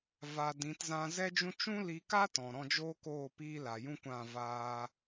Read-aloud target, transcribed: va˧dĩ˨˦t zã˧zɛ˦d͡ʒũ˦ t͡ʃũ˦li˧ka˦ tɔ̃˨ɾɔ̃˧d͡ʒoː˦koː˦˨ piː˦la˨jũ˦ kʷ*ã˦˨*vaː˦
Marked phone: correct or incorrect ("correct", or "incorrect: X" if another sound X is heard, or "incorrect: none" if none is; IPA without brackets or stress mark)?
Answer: correct